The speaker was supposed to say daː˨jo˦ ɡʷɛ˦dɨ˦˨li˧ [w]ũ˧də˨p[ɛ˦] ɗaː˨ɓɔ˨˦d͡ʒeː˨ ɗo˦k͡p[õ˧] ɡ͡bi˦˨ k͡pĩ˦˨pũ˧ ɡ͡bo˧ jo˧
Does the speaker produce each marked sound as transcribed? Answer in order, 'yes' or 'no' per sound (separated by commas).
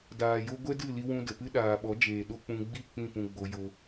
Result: yes, no, no